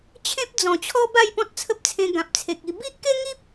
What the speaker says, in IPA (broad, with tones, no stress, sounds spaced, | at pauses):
t͡ɕʰ ẽ˦ p̚ d͡z ɔ̃˨˩ t͡ɕʰ ɔ˦ b a˥˧ j p ɔ̃˦ t̚ t͡sʰ ə˦ p̚ t͡sʰ ẽ˧ ɡ ã˨ p̚ t͡sʰ e˨ k̚ i˧ b i˦ ʔ k e˦ ŋ i˦ p̚